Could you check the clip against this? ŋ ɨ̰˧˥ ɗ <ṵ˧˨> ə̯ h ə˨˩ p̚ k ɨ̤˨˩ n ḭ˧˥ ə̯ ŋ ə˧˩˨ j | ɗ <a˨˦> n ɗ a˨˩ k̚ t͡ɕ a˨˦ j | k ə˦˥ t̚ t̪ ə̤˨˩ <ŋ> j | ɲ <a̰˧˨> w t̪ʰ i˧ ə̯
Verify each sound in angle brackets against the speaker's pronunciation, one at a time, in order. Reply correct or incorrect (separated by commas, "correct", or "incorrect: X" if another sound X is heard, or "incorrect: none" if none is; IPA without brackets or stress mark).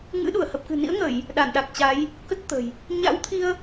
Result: incorrect: u˧˩, incorrect: a˧˩, incorrect: none, incorrect: a̰˧˥